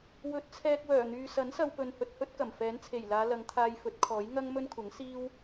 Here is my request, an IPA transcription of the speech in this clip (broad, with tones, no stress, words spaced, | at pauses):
wɵ˨˥t̚t͡sʰɛː˧k̚wœː˨˩n̪yː˨ sɐ˨˥nsɐ˧wpɵ˨n hɵ˧t̚hɵ˥t̚kɐ˨˩m fɛː˨˥nt͡sʰe˨˩jlaː˨˧ lɐ˨˧ŋt̪ʰaː˧jfɵ˨˥t̚kʰɔː˨˥j ŋɐ˥ŋ mɵ˥nkʷʰɐ˨˥ŋ siː˥w